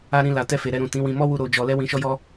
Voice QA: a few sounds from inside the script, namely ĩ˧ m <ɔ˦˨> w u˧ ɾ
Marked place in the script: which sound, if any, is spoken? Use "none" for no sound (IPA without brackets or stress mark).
ɔ˦